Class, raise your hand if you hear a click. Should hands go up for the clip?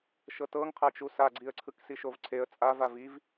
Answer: yes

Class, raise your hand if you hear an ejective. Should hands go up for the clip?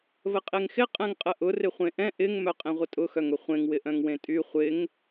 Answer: yes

